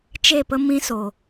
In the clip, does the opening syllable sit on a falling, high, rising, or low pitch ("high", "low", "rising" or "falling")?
falling